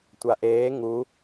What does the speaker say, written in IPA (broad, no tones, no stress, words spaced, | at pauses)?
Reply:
tʷaʔeː ŋu